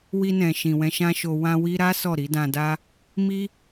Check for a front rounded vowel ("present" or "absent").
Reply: absent